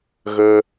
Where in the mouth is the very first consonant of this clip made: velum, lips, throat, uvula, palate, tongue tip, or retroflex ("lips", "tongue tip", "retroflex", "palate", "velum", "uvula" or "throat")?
velum